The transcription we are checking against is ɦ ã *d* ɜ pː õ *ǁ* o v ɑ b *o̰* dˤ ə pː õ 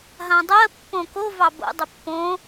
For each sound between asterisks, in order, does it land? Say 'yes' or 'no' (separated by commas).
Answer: no, no, yes